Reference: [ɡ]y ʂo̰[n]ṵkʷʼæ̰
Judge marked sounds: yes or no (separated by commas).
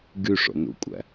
yes, yes